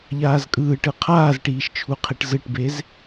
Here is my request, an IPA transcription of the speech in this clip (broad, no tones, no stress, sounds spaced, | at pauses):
ʎ aː z kʼ ɯː ʈ ɯ qʰ aː z ʈ iː ʃ t͡ʃʰ u qʰ i ʈ z ɯ ʈ b e z